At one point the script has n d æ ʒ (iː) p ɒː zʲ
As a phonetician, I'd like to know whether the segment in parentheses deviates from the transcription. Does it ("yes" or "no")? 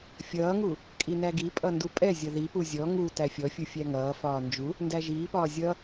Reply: no